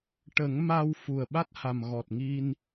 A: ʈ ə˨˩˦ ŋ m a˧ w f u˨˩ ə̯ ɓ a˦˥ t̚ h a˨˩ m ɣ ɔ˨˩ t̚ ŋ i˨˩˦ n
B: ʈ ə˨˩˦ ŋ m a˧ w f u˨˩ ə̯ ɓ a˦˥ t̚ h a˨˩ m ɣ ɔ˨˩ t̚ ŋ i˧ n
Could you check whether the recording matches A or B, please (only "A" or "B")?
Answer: B